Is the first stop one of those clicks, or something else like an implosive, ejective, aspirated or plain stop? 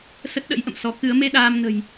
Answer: plain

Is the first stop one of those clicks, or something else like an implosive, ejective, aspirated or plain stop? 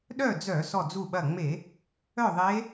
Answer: implosive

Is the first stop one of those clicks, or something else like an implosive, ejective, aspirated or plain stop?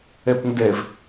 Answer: plain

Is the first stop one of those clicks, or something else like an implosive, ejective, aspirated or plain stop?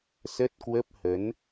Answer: plain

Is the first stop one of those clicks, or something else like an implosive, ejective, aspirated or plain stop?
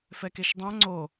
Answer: plain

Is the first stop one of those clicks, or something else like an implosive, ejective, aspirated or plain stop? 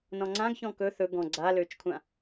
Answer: click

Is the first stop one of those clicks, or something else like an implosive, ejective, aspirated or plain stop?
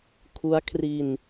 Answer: aspirated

